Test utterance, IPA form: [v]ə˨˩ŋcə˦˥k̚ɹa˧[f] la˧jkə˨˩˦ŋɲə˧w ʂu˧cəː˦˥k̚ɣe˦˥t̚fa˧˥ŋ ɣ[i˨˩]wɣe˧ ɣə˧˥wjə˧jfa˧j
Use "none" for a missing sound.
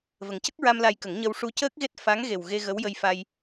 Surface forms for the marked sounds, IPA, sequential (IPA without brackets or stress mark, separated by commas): v, m, e˨˩